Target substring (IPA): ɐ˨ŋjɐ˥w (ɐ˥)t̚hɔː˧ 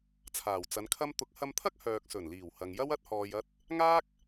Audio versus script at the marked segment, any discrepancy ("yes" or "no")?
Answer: no